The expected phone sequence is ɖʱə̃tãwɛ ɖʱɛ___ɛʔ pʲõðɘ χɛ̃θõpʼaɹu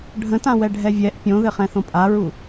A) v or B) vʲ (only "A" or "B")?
B